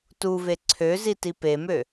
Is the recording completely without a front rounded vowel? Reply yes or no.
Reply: no